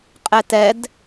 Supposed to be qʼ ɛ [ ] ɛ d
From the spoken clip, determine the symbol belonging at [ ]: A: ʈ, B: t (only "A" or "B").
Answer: B